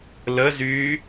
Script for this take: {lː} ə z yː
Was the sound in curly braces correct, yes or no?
no